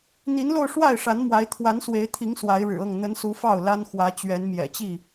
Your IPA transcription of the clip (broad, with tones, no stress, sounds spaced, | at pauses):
n̪ i˨˦ n l o˧ ʊ̯ ʂ w a˥˨ ɪ̯ ʂ a˨˦ n m w a˨˦ ɪ̯ t̪ʰ w a˨˦ n s w e˨˦ ɪ̯ t̪ʰ i˨˦ ŋ s w a˨˦ ɪ̯ ɻ ɻ̩˨˩ ɤ˥˨ ŋ n̪ ə˨˦ n s u˨˦ f ɑ˥˨ ʊ̯ l a˦ n x w ä˨˦ t͡ɕ ɥ ɛ˨˦ n m j ɛ̰˨˩ t͡ɕ i˥˨